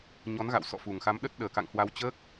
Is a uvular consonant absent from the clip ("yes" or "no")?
yes